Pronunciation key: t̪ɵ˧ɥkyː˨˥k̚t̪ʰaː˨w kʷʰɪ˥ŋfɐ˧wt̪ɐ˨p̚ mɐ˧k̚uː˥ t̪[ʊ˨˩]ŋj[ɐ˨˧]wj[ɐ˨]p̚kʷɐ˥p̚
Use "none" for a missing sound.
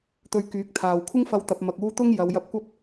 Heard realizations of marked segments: ʊ˥, ɐ˨˧, ɐ˧

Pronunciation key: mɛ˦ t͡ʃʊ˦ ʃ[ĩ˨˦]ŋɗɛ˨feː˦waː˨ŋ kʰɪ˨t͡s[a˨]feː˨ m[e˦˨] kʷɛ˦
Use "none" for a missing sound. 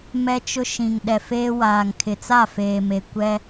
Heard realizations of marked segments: ĩ˨, a˦˨, e˨

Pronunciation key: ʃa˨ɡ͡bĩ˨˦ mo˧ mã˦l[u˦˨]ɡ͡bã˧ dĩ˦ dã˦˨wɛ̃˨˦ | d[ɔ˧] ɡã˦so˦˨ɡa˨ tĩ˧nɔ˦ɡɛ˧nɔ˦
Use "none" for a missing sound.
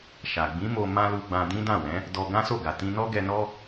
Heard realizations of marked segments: u˧, ɔ˧

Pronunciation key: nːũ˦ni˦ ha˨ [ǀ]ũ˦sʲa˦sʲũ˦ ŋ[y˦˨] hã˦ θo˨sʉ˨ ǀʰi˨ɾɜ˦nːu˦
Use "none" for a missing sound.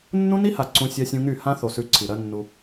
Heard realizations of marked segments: ǀ, y˦˨

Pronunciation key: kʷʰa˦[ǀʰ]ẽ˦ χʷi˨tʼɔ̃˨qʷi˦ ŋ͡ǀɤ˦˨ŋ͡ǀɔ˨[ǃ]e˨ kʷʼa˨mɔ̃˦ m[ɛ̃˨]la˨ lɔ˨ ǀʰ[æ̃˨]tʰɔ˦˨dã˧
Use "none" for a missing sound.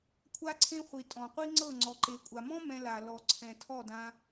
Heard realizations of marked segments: ǀʰ, ǃ, ɛ̃˧, ɛ̃˨

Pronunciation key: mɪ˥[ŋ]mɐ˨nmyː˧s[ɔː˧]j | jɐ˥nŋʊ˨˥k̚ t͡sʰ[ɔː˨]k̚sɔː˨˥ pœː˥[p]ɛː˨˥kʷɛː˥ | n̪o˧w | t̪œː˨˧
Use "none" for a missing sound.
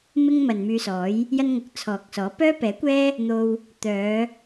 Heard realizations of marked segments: ŋ, ɔː˨˥, ɔː˨, p

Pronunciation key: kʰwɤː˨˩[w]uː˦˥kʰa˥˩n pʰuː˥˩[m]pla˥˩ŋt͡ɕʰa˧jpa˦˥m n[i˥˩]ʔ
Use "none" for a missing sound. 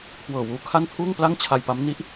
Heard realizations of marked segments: w, ŋ, i˦˥

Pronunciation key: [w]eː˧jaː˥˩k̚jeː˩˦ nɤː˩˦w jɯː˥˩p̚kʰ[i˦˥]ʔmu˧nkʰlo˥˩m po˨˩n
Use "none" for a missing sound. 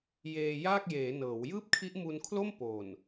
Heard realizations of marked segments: j, i˦˥

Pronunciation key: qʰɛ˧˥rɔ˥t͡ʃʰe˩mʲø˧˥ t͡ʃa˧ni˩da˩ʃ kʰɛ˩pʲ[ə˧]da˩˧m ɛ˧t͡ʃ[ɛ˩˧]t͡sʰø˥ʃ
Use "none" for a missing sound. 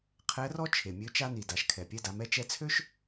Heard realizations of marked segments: ɛ˧, ɛ˧

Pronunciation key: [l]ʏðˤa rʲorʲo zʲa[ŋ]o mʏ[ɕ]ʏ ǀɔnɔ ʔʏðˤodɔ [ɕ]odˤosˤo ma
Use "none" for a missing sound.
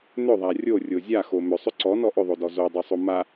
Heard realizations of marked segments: n, x, sˤ, z

